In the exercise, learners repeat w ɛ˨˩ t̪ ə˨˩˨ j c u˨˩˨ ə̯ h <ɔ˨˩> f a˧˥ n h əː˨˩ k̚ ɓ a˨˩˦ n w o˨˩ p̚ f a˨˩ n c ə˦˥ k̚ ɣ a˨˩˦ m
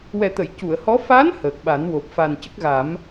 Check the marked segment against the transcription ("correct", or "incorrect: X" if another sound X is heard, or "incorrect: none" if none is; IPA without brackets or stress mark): incorrect: ɔ˧˥